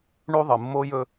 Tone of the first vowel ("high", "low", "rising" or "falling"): high